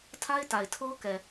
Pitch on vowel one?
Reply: high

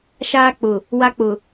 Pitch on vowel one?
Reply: high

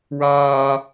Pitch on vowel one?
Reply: high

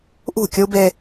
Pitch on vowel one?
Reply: falling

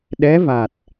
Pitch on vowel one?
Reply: rising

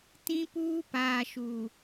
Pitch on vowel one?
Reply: high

